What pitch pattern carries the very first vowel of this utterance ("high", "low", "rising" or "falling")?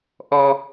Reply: high